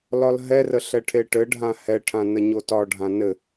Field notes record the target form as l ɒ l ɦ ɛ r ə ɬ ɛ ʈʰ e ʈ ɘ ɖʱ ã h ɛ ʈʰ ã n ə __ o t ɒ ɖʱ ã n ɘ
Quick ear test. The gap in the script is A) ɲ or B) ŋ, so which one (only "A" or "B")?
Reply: A